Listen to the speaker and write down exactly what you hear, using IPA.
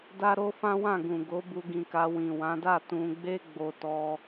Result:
d a˧ ɾ o˧ f ã˦ w ã˦˨ ɡ ũ˨ ɡ o˨˦ b u˧ ɡ ĩ˧ k a˧ w ĩ˨ w ã˨˦ d a˦˨ t ũ˧ ɡ͡b e˦ ɡ͡b o˧ t ɔ˧

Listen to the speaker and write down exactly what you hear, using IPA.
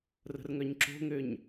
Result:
r ə̤ r ŋ œ ɲ ǁ o̤ ŋ ø ɲ

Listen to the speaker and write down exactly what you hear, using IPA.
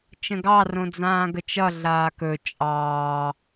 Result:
t͡ʃ ə̃ ɡ ɑ r õ d͡z ãː ɡ ə t͡ʃ ʌ ɮ aː k ɵ t͡ʃʼ ɑː

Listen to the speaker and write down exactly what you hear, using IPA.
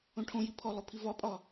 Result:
õ ʈʰ õ j i pʰ ɔ lˠ o pʰ i v ɒ pʼ ɒ

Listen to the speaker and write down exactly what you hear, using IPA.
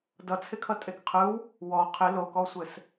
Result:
d ʌ t͡sʰ ɪ kʰ ʌ tʼ e k qʰ ɯ w | w ɔ qʰ ɪ l o k ɔ sʷ ɘ s

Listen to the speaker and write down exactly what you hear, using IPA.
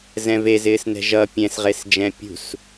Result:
z ɛ̃ v e z ɪː s n ɛ̤ ʒ ʌ pʲ ɛ̃ s ʁ e s d͡ʒ ɛ̃ pʲ ṳ s

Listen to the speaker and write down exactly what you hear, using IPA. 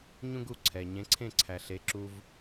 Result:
ɲ ũ˥ ɡ u˧ ǀʰ ɛ˩ ɲ ẽ˩˥ ǀʰ ẽ˥˩ ǀʰ æ˩ ɬ e˩˥ ǁ u˧ v

